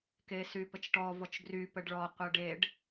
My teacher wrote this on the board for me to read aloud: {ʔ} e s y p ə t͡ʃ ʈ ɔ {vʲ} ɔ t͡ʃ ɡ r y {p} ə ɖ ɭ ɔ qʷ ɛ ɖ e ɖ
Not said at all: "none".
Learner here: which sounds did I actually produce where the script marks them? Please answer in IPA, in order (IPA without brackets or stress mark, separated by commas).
k, v, p